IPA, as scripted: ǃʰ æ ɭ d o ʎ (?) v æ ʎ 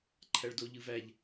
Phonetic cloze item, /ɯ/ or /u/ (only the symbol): ɯ